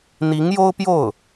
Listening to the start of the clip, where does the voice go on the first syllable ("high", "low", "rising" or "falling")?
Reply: rising